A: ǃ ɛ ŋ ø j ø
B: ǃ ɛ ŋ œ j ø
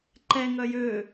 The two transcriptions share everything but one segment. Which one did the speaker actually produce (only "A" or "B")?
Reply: B